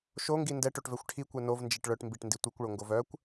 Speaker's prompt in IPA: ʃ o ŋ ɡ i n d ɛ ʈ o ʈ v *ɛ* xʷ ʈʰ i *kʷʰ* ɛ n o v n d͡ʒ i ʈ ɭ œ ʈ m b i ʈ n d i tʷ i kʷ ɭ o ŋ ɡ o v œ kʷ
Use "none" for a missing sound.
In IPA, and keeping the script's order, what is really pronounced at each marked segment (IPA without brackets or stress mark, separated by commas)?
ɛ, kʷ